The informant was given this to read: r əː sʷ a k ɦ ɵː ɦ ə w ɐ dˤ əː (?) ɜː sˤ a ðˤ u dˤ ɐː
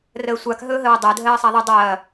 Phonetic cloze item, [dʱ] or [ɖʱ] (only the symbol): dʱ